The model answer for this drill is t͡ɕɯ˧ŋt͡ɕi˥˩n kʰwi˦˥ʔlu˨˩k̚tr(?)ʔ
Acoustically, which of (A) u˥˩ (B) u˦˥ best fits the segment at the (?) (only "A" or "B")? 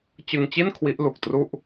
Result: A